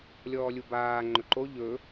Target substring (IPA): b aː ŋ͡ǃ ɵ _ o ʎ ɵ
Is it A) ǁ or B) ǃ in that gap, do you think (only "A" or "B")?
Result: B